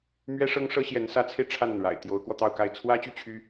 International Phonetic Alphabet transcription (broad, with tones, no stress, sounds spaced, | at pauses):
m ɥ ɛ˥ ʂ ɤ˥ ŋ ʂ ɤ˥ ɕ j ɛ˧˥ n s ä˧˥ t͡sʰ e˧ ɪ̯ ʈ͡ʂʰ a˥˩ n a˩ n ɻ a̰˨˩ ɪ̯ t̪ j o˧˥ ʊ̯ k w ɔ˧ t̪ ɑ˥˧ ʊ̯ k a˥˩ ɪ̯ t͡sʰ w ä˥ t͡ɕ y˥˩ t͡ɕʰ y˥